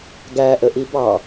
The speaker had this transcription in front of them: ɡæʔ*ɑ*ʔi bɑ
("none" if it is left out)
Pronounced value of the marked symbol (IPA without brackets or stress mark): ə